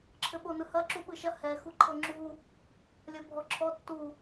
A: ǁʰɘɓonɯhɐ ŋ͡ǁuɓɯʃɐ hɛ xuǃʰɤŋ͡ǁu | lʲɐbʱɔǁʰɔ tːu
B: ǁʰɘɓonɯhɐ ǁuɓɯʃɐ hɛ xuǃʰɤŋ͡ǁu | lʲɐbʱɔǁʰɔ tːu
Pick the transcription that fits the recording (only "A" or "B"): B